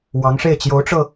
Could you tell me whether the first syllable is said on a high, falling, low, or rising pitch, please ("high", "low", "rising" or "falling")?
rising